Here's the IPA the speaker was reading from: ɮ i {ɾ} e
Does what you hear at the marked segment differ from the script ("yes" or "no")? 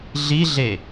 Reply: yes